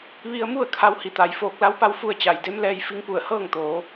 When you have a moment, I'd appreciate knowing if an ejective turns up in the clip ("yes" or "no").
no